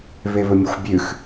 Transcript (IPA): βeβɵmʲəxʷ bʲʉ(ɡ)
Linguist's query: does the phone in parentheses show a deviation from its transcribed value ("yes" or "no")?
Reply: yes